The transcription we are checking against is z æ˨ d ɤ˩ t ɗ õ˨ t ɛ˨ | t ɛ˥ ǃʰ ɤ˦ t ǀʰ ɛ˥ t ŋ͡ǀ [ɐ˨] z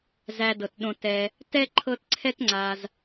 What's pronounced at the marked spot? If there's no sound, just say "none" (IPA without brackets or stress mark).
a˨